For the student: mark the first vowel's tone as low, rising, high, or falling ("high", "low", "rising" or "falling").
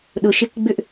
low